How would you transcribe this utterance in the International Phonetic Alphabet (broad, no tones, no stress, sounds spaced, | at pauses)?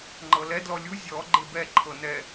ŋ͡ǃ ɤ l ɛ d l ɔ lʲ u zʲ ɔ ɡ͡ǃ e b ɛ ǃʰ ɤ n ɛ